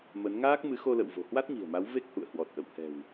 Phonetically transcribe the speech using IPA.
m ə˨˦ n ŋ aː˦˥ k̚ m ɨ˨˦ x o˧ l ə̰˧˨ w v o̤˨˩ h w a˦˥ t̚ ɲ i̤˨˩ ə̯ m a˨˦ w v e˦˥ k̚ h ṵ˧˨ ə̯ h w ɔ˨˩ t̚ ʔ ə̰˧˨ w h ɛ̤˨˩ w

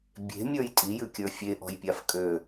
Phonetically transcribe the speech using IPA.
bʲ e̤ mʲ ə˞ j tʼ i j ʉ kʲ ə˞ fʲ e ʔ ɔ̤ j pʲ a f kʼ ø

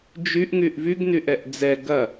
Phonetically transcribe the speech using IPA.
d͡ʒ y ʔ ŋ y ʔ v y ɡ n y ʔ ɛ ʔ d͡z ɛ ɡ ɐ

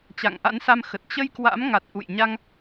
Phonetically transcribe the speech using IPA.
t͡ɕ a̰˧˨ ŋ ʔ a̰˧˥ n s a˧ m x ə˨˩ t̚ t͡ɕ ə˧ j k w a̰˧˥ m ŋ a˨˩ t̚ ʔ ṵ˧˨ j ɲ a˧ ŋ

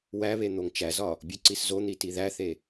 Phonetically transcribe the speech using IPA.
w æ β e n̪ o ŋ t͡ʃ æ z ɒ | bʲ u ǀ i s z o n̪ i t i ð æ θ e

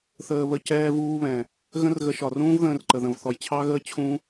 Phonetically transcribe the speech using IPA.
θ əː˧ β ə˧ c ɛː˧ v uː˧ β ɛ̃˨ | ɣ ə̃˦ r ɣ ə˧ ʃ ɒ˨ r ũː˦ v ð ə̃ː˧ r ǃ ə˨ ð ə̃˨ v θ ɔ˨ j t͡ɕʰ ɑ˦ ɣ əː˦ t͡ɕʰ ũ˦

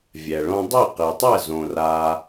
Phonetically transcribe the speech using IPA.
vʲ ɛ˨ ɭ õ˦ dˤ e˦˨ q e˨ tˤ ɛ˦˨ z õ˨ r a˧

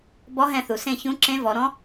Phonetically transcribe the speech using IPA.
b ɔ˧˥ ɦ ɛ̃˦˨ θ u˩ s ẽ˦˨ ç ũ˧˥ ǁ ẽ˧˥ v ɔ˩˧ ɾ ɔ̃˧˥

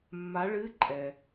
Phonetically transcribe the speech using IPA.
mː a˧˥ ɭ ɨ˧˥˧ ǃʼ ɛ˨

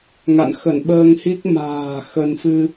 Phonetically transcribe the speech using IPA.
ŋ a̰˧˨ n x ə˧˩ n ɓ əː˧ ŋ h i˦˥ k̚ m a̤ː˨˩ x ə˧ n f ɨ˧

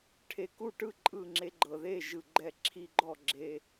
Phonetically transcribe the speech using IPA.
ʈʰ e˨˩ k u˥˩ ʈ ɯ˥˩ ǃʼ ɯ˥˩ ŋ͡ǁ e˧ ɡ͡ǃ ɤ˨˩ ð e˥˩ ʒ ɯ˨˩ ɡ͡ǃ ɛ˥˩ ǁʰ i˧ ɡ͡ǃ ɔ˥˩ ɡ͡ǁ e˧

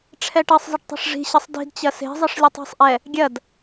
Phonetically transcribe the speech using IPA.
ʈ͡ʂʰ ɛ ʈ ɐ sˤ zˤ ɨ ʈ tˤ e̤ ʂ ʐ i̤ ɕ ɐ sˤ d i̤ d t͡ɕ ɐ s e̤ zˤ ɨ ʂ lʲ ɨ tˤ i̤ sˤ ʔ ɛ | ɡʲ ɐ d

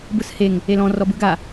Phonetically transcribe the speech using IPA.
b ɯ s h e ŋ | e l ɔ̃ r ɔ b ɯ ɡ a

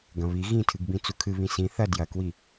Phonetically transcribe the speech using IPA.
ɡ ɐ̃ β i ɣ ĩ tʰ ɨ ɡ b ĩ t͡s u kʰ ɨ β ĩ s ĩ θ ɐ d j ɐ k w i

